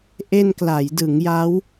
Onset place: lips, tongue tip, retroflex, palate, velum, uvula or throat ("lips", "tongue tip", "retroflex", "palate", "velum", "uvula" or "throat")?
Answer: throat